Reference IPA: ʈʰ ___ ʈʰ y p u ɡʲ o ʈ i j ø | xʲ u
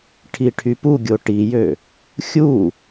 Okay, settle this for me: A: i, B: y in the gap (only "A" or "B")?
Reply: A